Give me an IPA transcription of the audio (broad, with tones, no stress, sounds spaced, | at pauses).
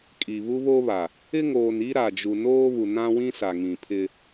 kʼ i˨ β u˦ β o˦ β a˨ | ɪ˦ ŋ oː˨ n i˦ ɾ a˨ d͡ʒ u˨ n oː˦ β u˨ n ã˦ w ĩ˦ s a˨ ŋ ĩ˨ pʰ ɪ˦